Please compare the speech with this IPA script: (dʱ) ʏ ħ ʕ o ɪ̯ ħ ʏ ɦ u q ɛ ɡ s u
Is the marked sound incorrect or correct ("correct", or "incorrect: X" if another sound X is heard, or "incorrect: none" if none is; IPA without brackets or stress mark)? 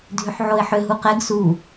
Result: correct